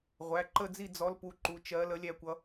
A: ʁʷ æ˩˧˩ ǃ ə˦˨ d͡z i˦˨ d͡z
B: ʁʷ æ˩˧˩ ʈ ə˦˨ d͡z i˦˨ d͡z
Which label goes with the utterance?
A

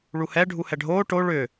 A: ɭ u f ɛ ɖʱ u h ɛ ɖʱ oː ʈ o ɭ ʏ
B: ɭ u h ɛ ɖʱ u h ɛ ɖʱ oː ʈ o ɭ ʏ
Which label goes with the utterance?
B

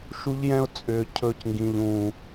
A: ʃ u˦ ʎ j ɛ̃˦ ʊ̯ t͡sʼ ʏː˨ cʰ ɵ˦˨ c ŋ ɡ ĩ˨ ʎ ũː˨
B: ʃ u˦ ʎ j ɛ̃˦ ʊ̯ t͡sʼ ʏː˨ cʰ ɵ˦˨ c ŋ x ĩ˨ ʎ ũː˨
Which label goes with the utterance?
A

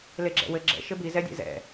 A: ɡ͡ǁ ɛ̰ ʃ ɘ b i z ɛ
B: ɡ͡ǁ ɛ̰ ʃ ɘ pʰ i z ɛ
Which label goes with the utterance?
A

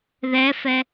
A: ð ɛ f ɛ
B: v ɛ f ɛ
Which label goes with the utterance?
A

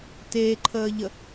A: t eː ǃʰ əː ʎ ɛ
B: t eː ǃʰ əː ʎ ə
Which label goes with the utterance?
B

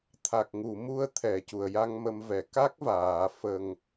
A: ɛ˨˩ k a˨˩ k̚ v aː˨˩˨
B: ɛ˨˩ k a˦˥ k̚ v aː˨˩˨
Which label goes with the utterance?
B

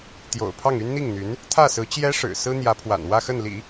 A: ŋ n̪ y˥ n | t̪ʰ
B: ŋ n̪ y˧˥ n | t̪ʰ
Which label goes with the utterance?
B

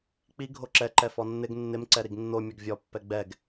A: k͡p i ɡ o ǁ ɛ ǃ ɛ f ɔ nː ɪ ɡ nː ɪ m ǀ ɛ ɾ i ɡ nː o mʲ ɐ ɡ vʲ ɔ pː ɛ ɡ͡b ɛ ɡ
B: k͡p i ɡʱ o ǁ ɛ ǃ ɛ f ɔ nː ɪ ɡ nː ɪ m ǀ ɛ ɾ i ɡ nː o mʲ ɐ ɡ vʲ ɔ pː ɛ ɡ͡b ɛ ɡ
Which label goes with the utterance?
B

